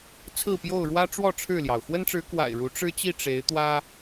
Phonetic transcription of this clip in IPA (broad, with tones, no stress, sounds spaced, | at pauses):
t͡sʰ ɹ̩˥˨ p j o˥˨ ʊ̯ ɻ w ä˦ ʈ͡ʂ w ɔ˥˨ ʈ͡ʂʰ ɻ̩˥˨ l j ɑ˩ ʊ̯ x w ə˦ n ʈ͡ʂ ɻ̩˨˦ k w a̰˨˩ ɪ̯ ɻ u˨˦ ʈ͡ʂ ɻ̩˦ t͡ɕ i˥˨ ʈ͡ʂ e˨˦ ɪ̯ t̪ w ä˦